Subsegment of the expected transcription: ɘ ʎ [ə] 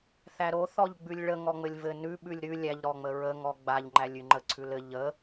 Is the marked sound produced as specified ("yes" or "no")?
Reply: yes